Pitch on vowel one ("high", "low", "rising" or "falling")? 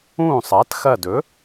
falling